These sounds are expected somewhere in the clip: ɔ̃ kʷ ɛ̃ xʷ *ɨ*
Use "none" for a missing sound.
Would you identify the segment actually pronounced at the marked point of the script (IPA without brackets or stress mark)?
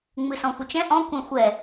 ɛ